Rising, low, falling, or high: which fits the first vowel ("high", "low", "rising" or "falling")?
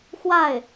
falling